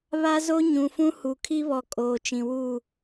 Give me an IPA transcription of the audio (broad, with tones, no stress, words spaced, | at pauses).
βa˦zo˦ ɲũ˨fũ˦ hu˨ kʰi˦βɔ˨ kʼoː˨t͡ʃĩ˨ wu˦˨